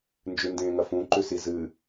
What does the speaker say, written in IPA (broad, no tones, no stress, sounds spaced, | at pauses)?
n d͡ʒ ʉ n d ẽː ŋ ɐ f ũ ǃ ʉ s i z ɨ